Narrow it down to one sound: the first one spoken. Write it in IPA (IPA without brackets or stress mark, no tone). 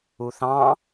u